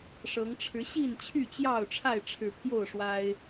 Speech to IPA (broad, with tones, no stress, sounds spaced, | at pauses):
ʂ ɤ˨˦ ŋ ʈ͡ʂʰ ɻ̩˨˦ ɕ i˥˨ n t͡ɕʰ y˥˨ t͡ɕ j ɑ˥˨ ʊ̯ ʈ͡ʂʰ a˥˨ ɪ̯ ʈ͡ʂʰ ɻ̩˨˩ pʰ j o˥˨ ʊ̯ ʂ w a˦ ɪ̯